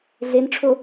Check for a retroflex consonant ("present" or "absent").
present